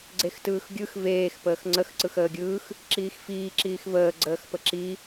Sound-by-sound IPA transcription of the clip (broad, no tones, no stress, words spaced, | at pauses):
ɡ͡ǀextɯːxɡʲɯx veːx pəːxŋ͡ǀəx ǀɯxəːɡʲɯːx | ǁiːxfiː ǁiːxvəː ɡ͡ǀəːxpəǁi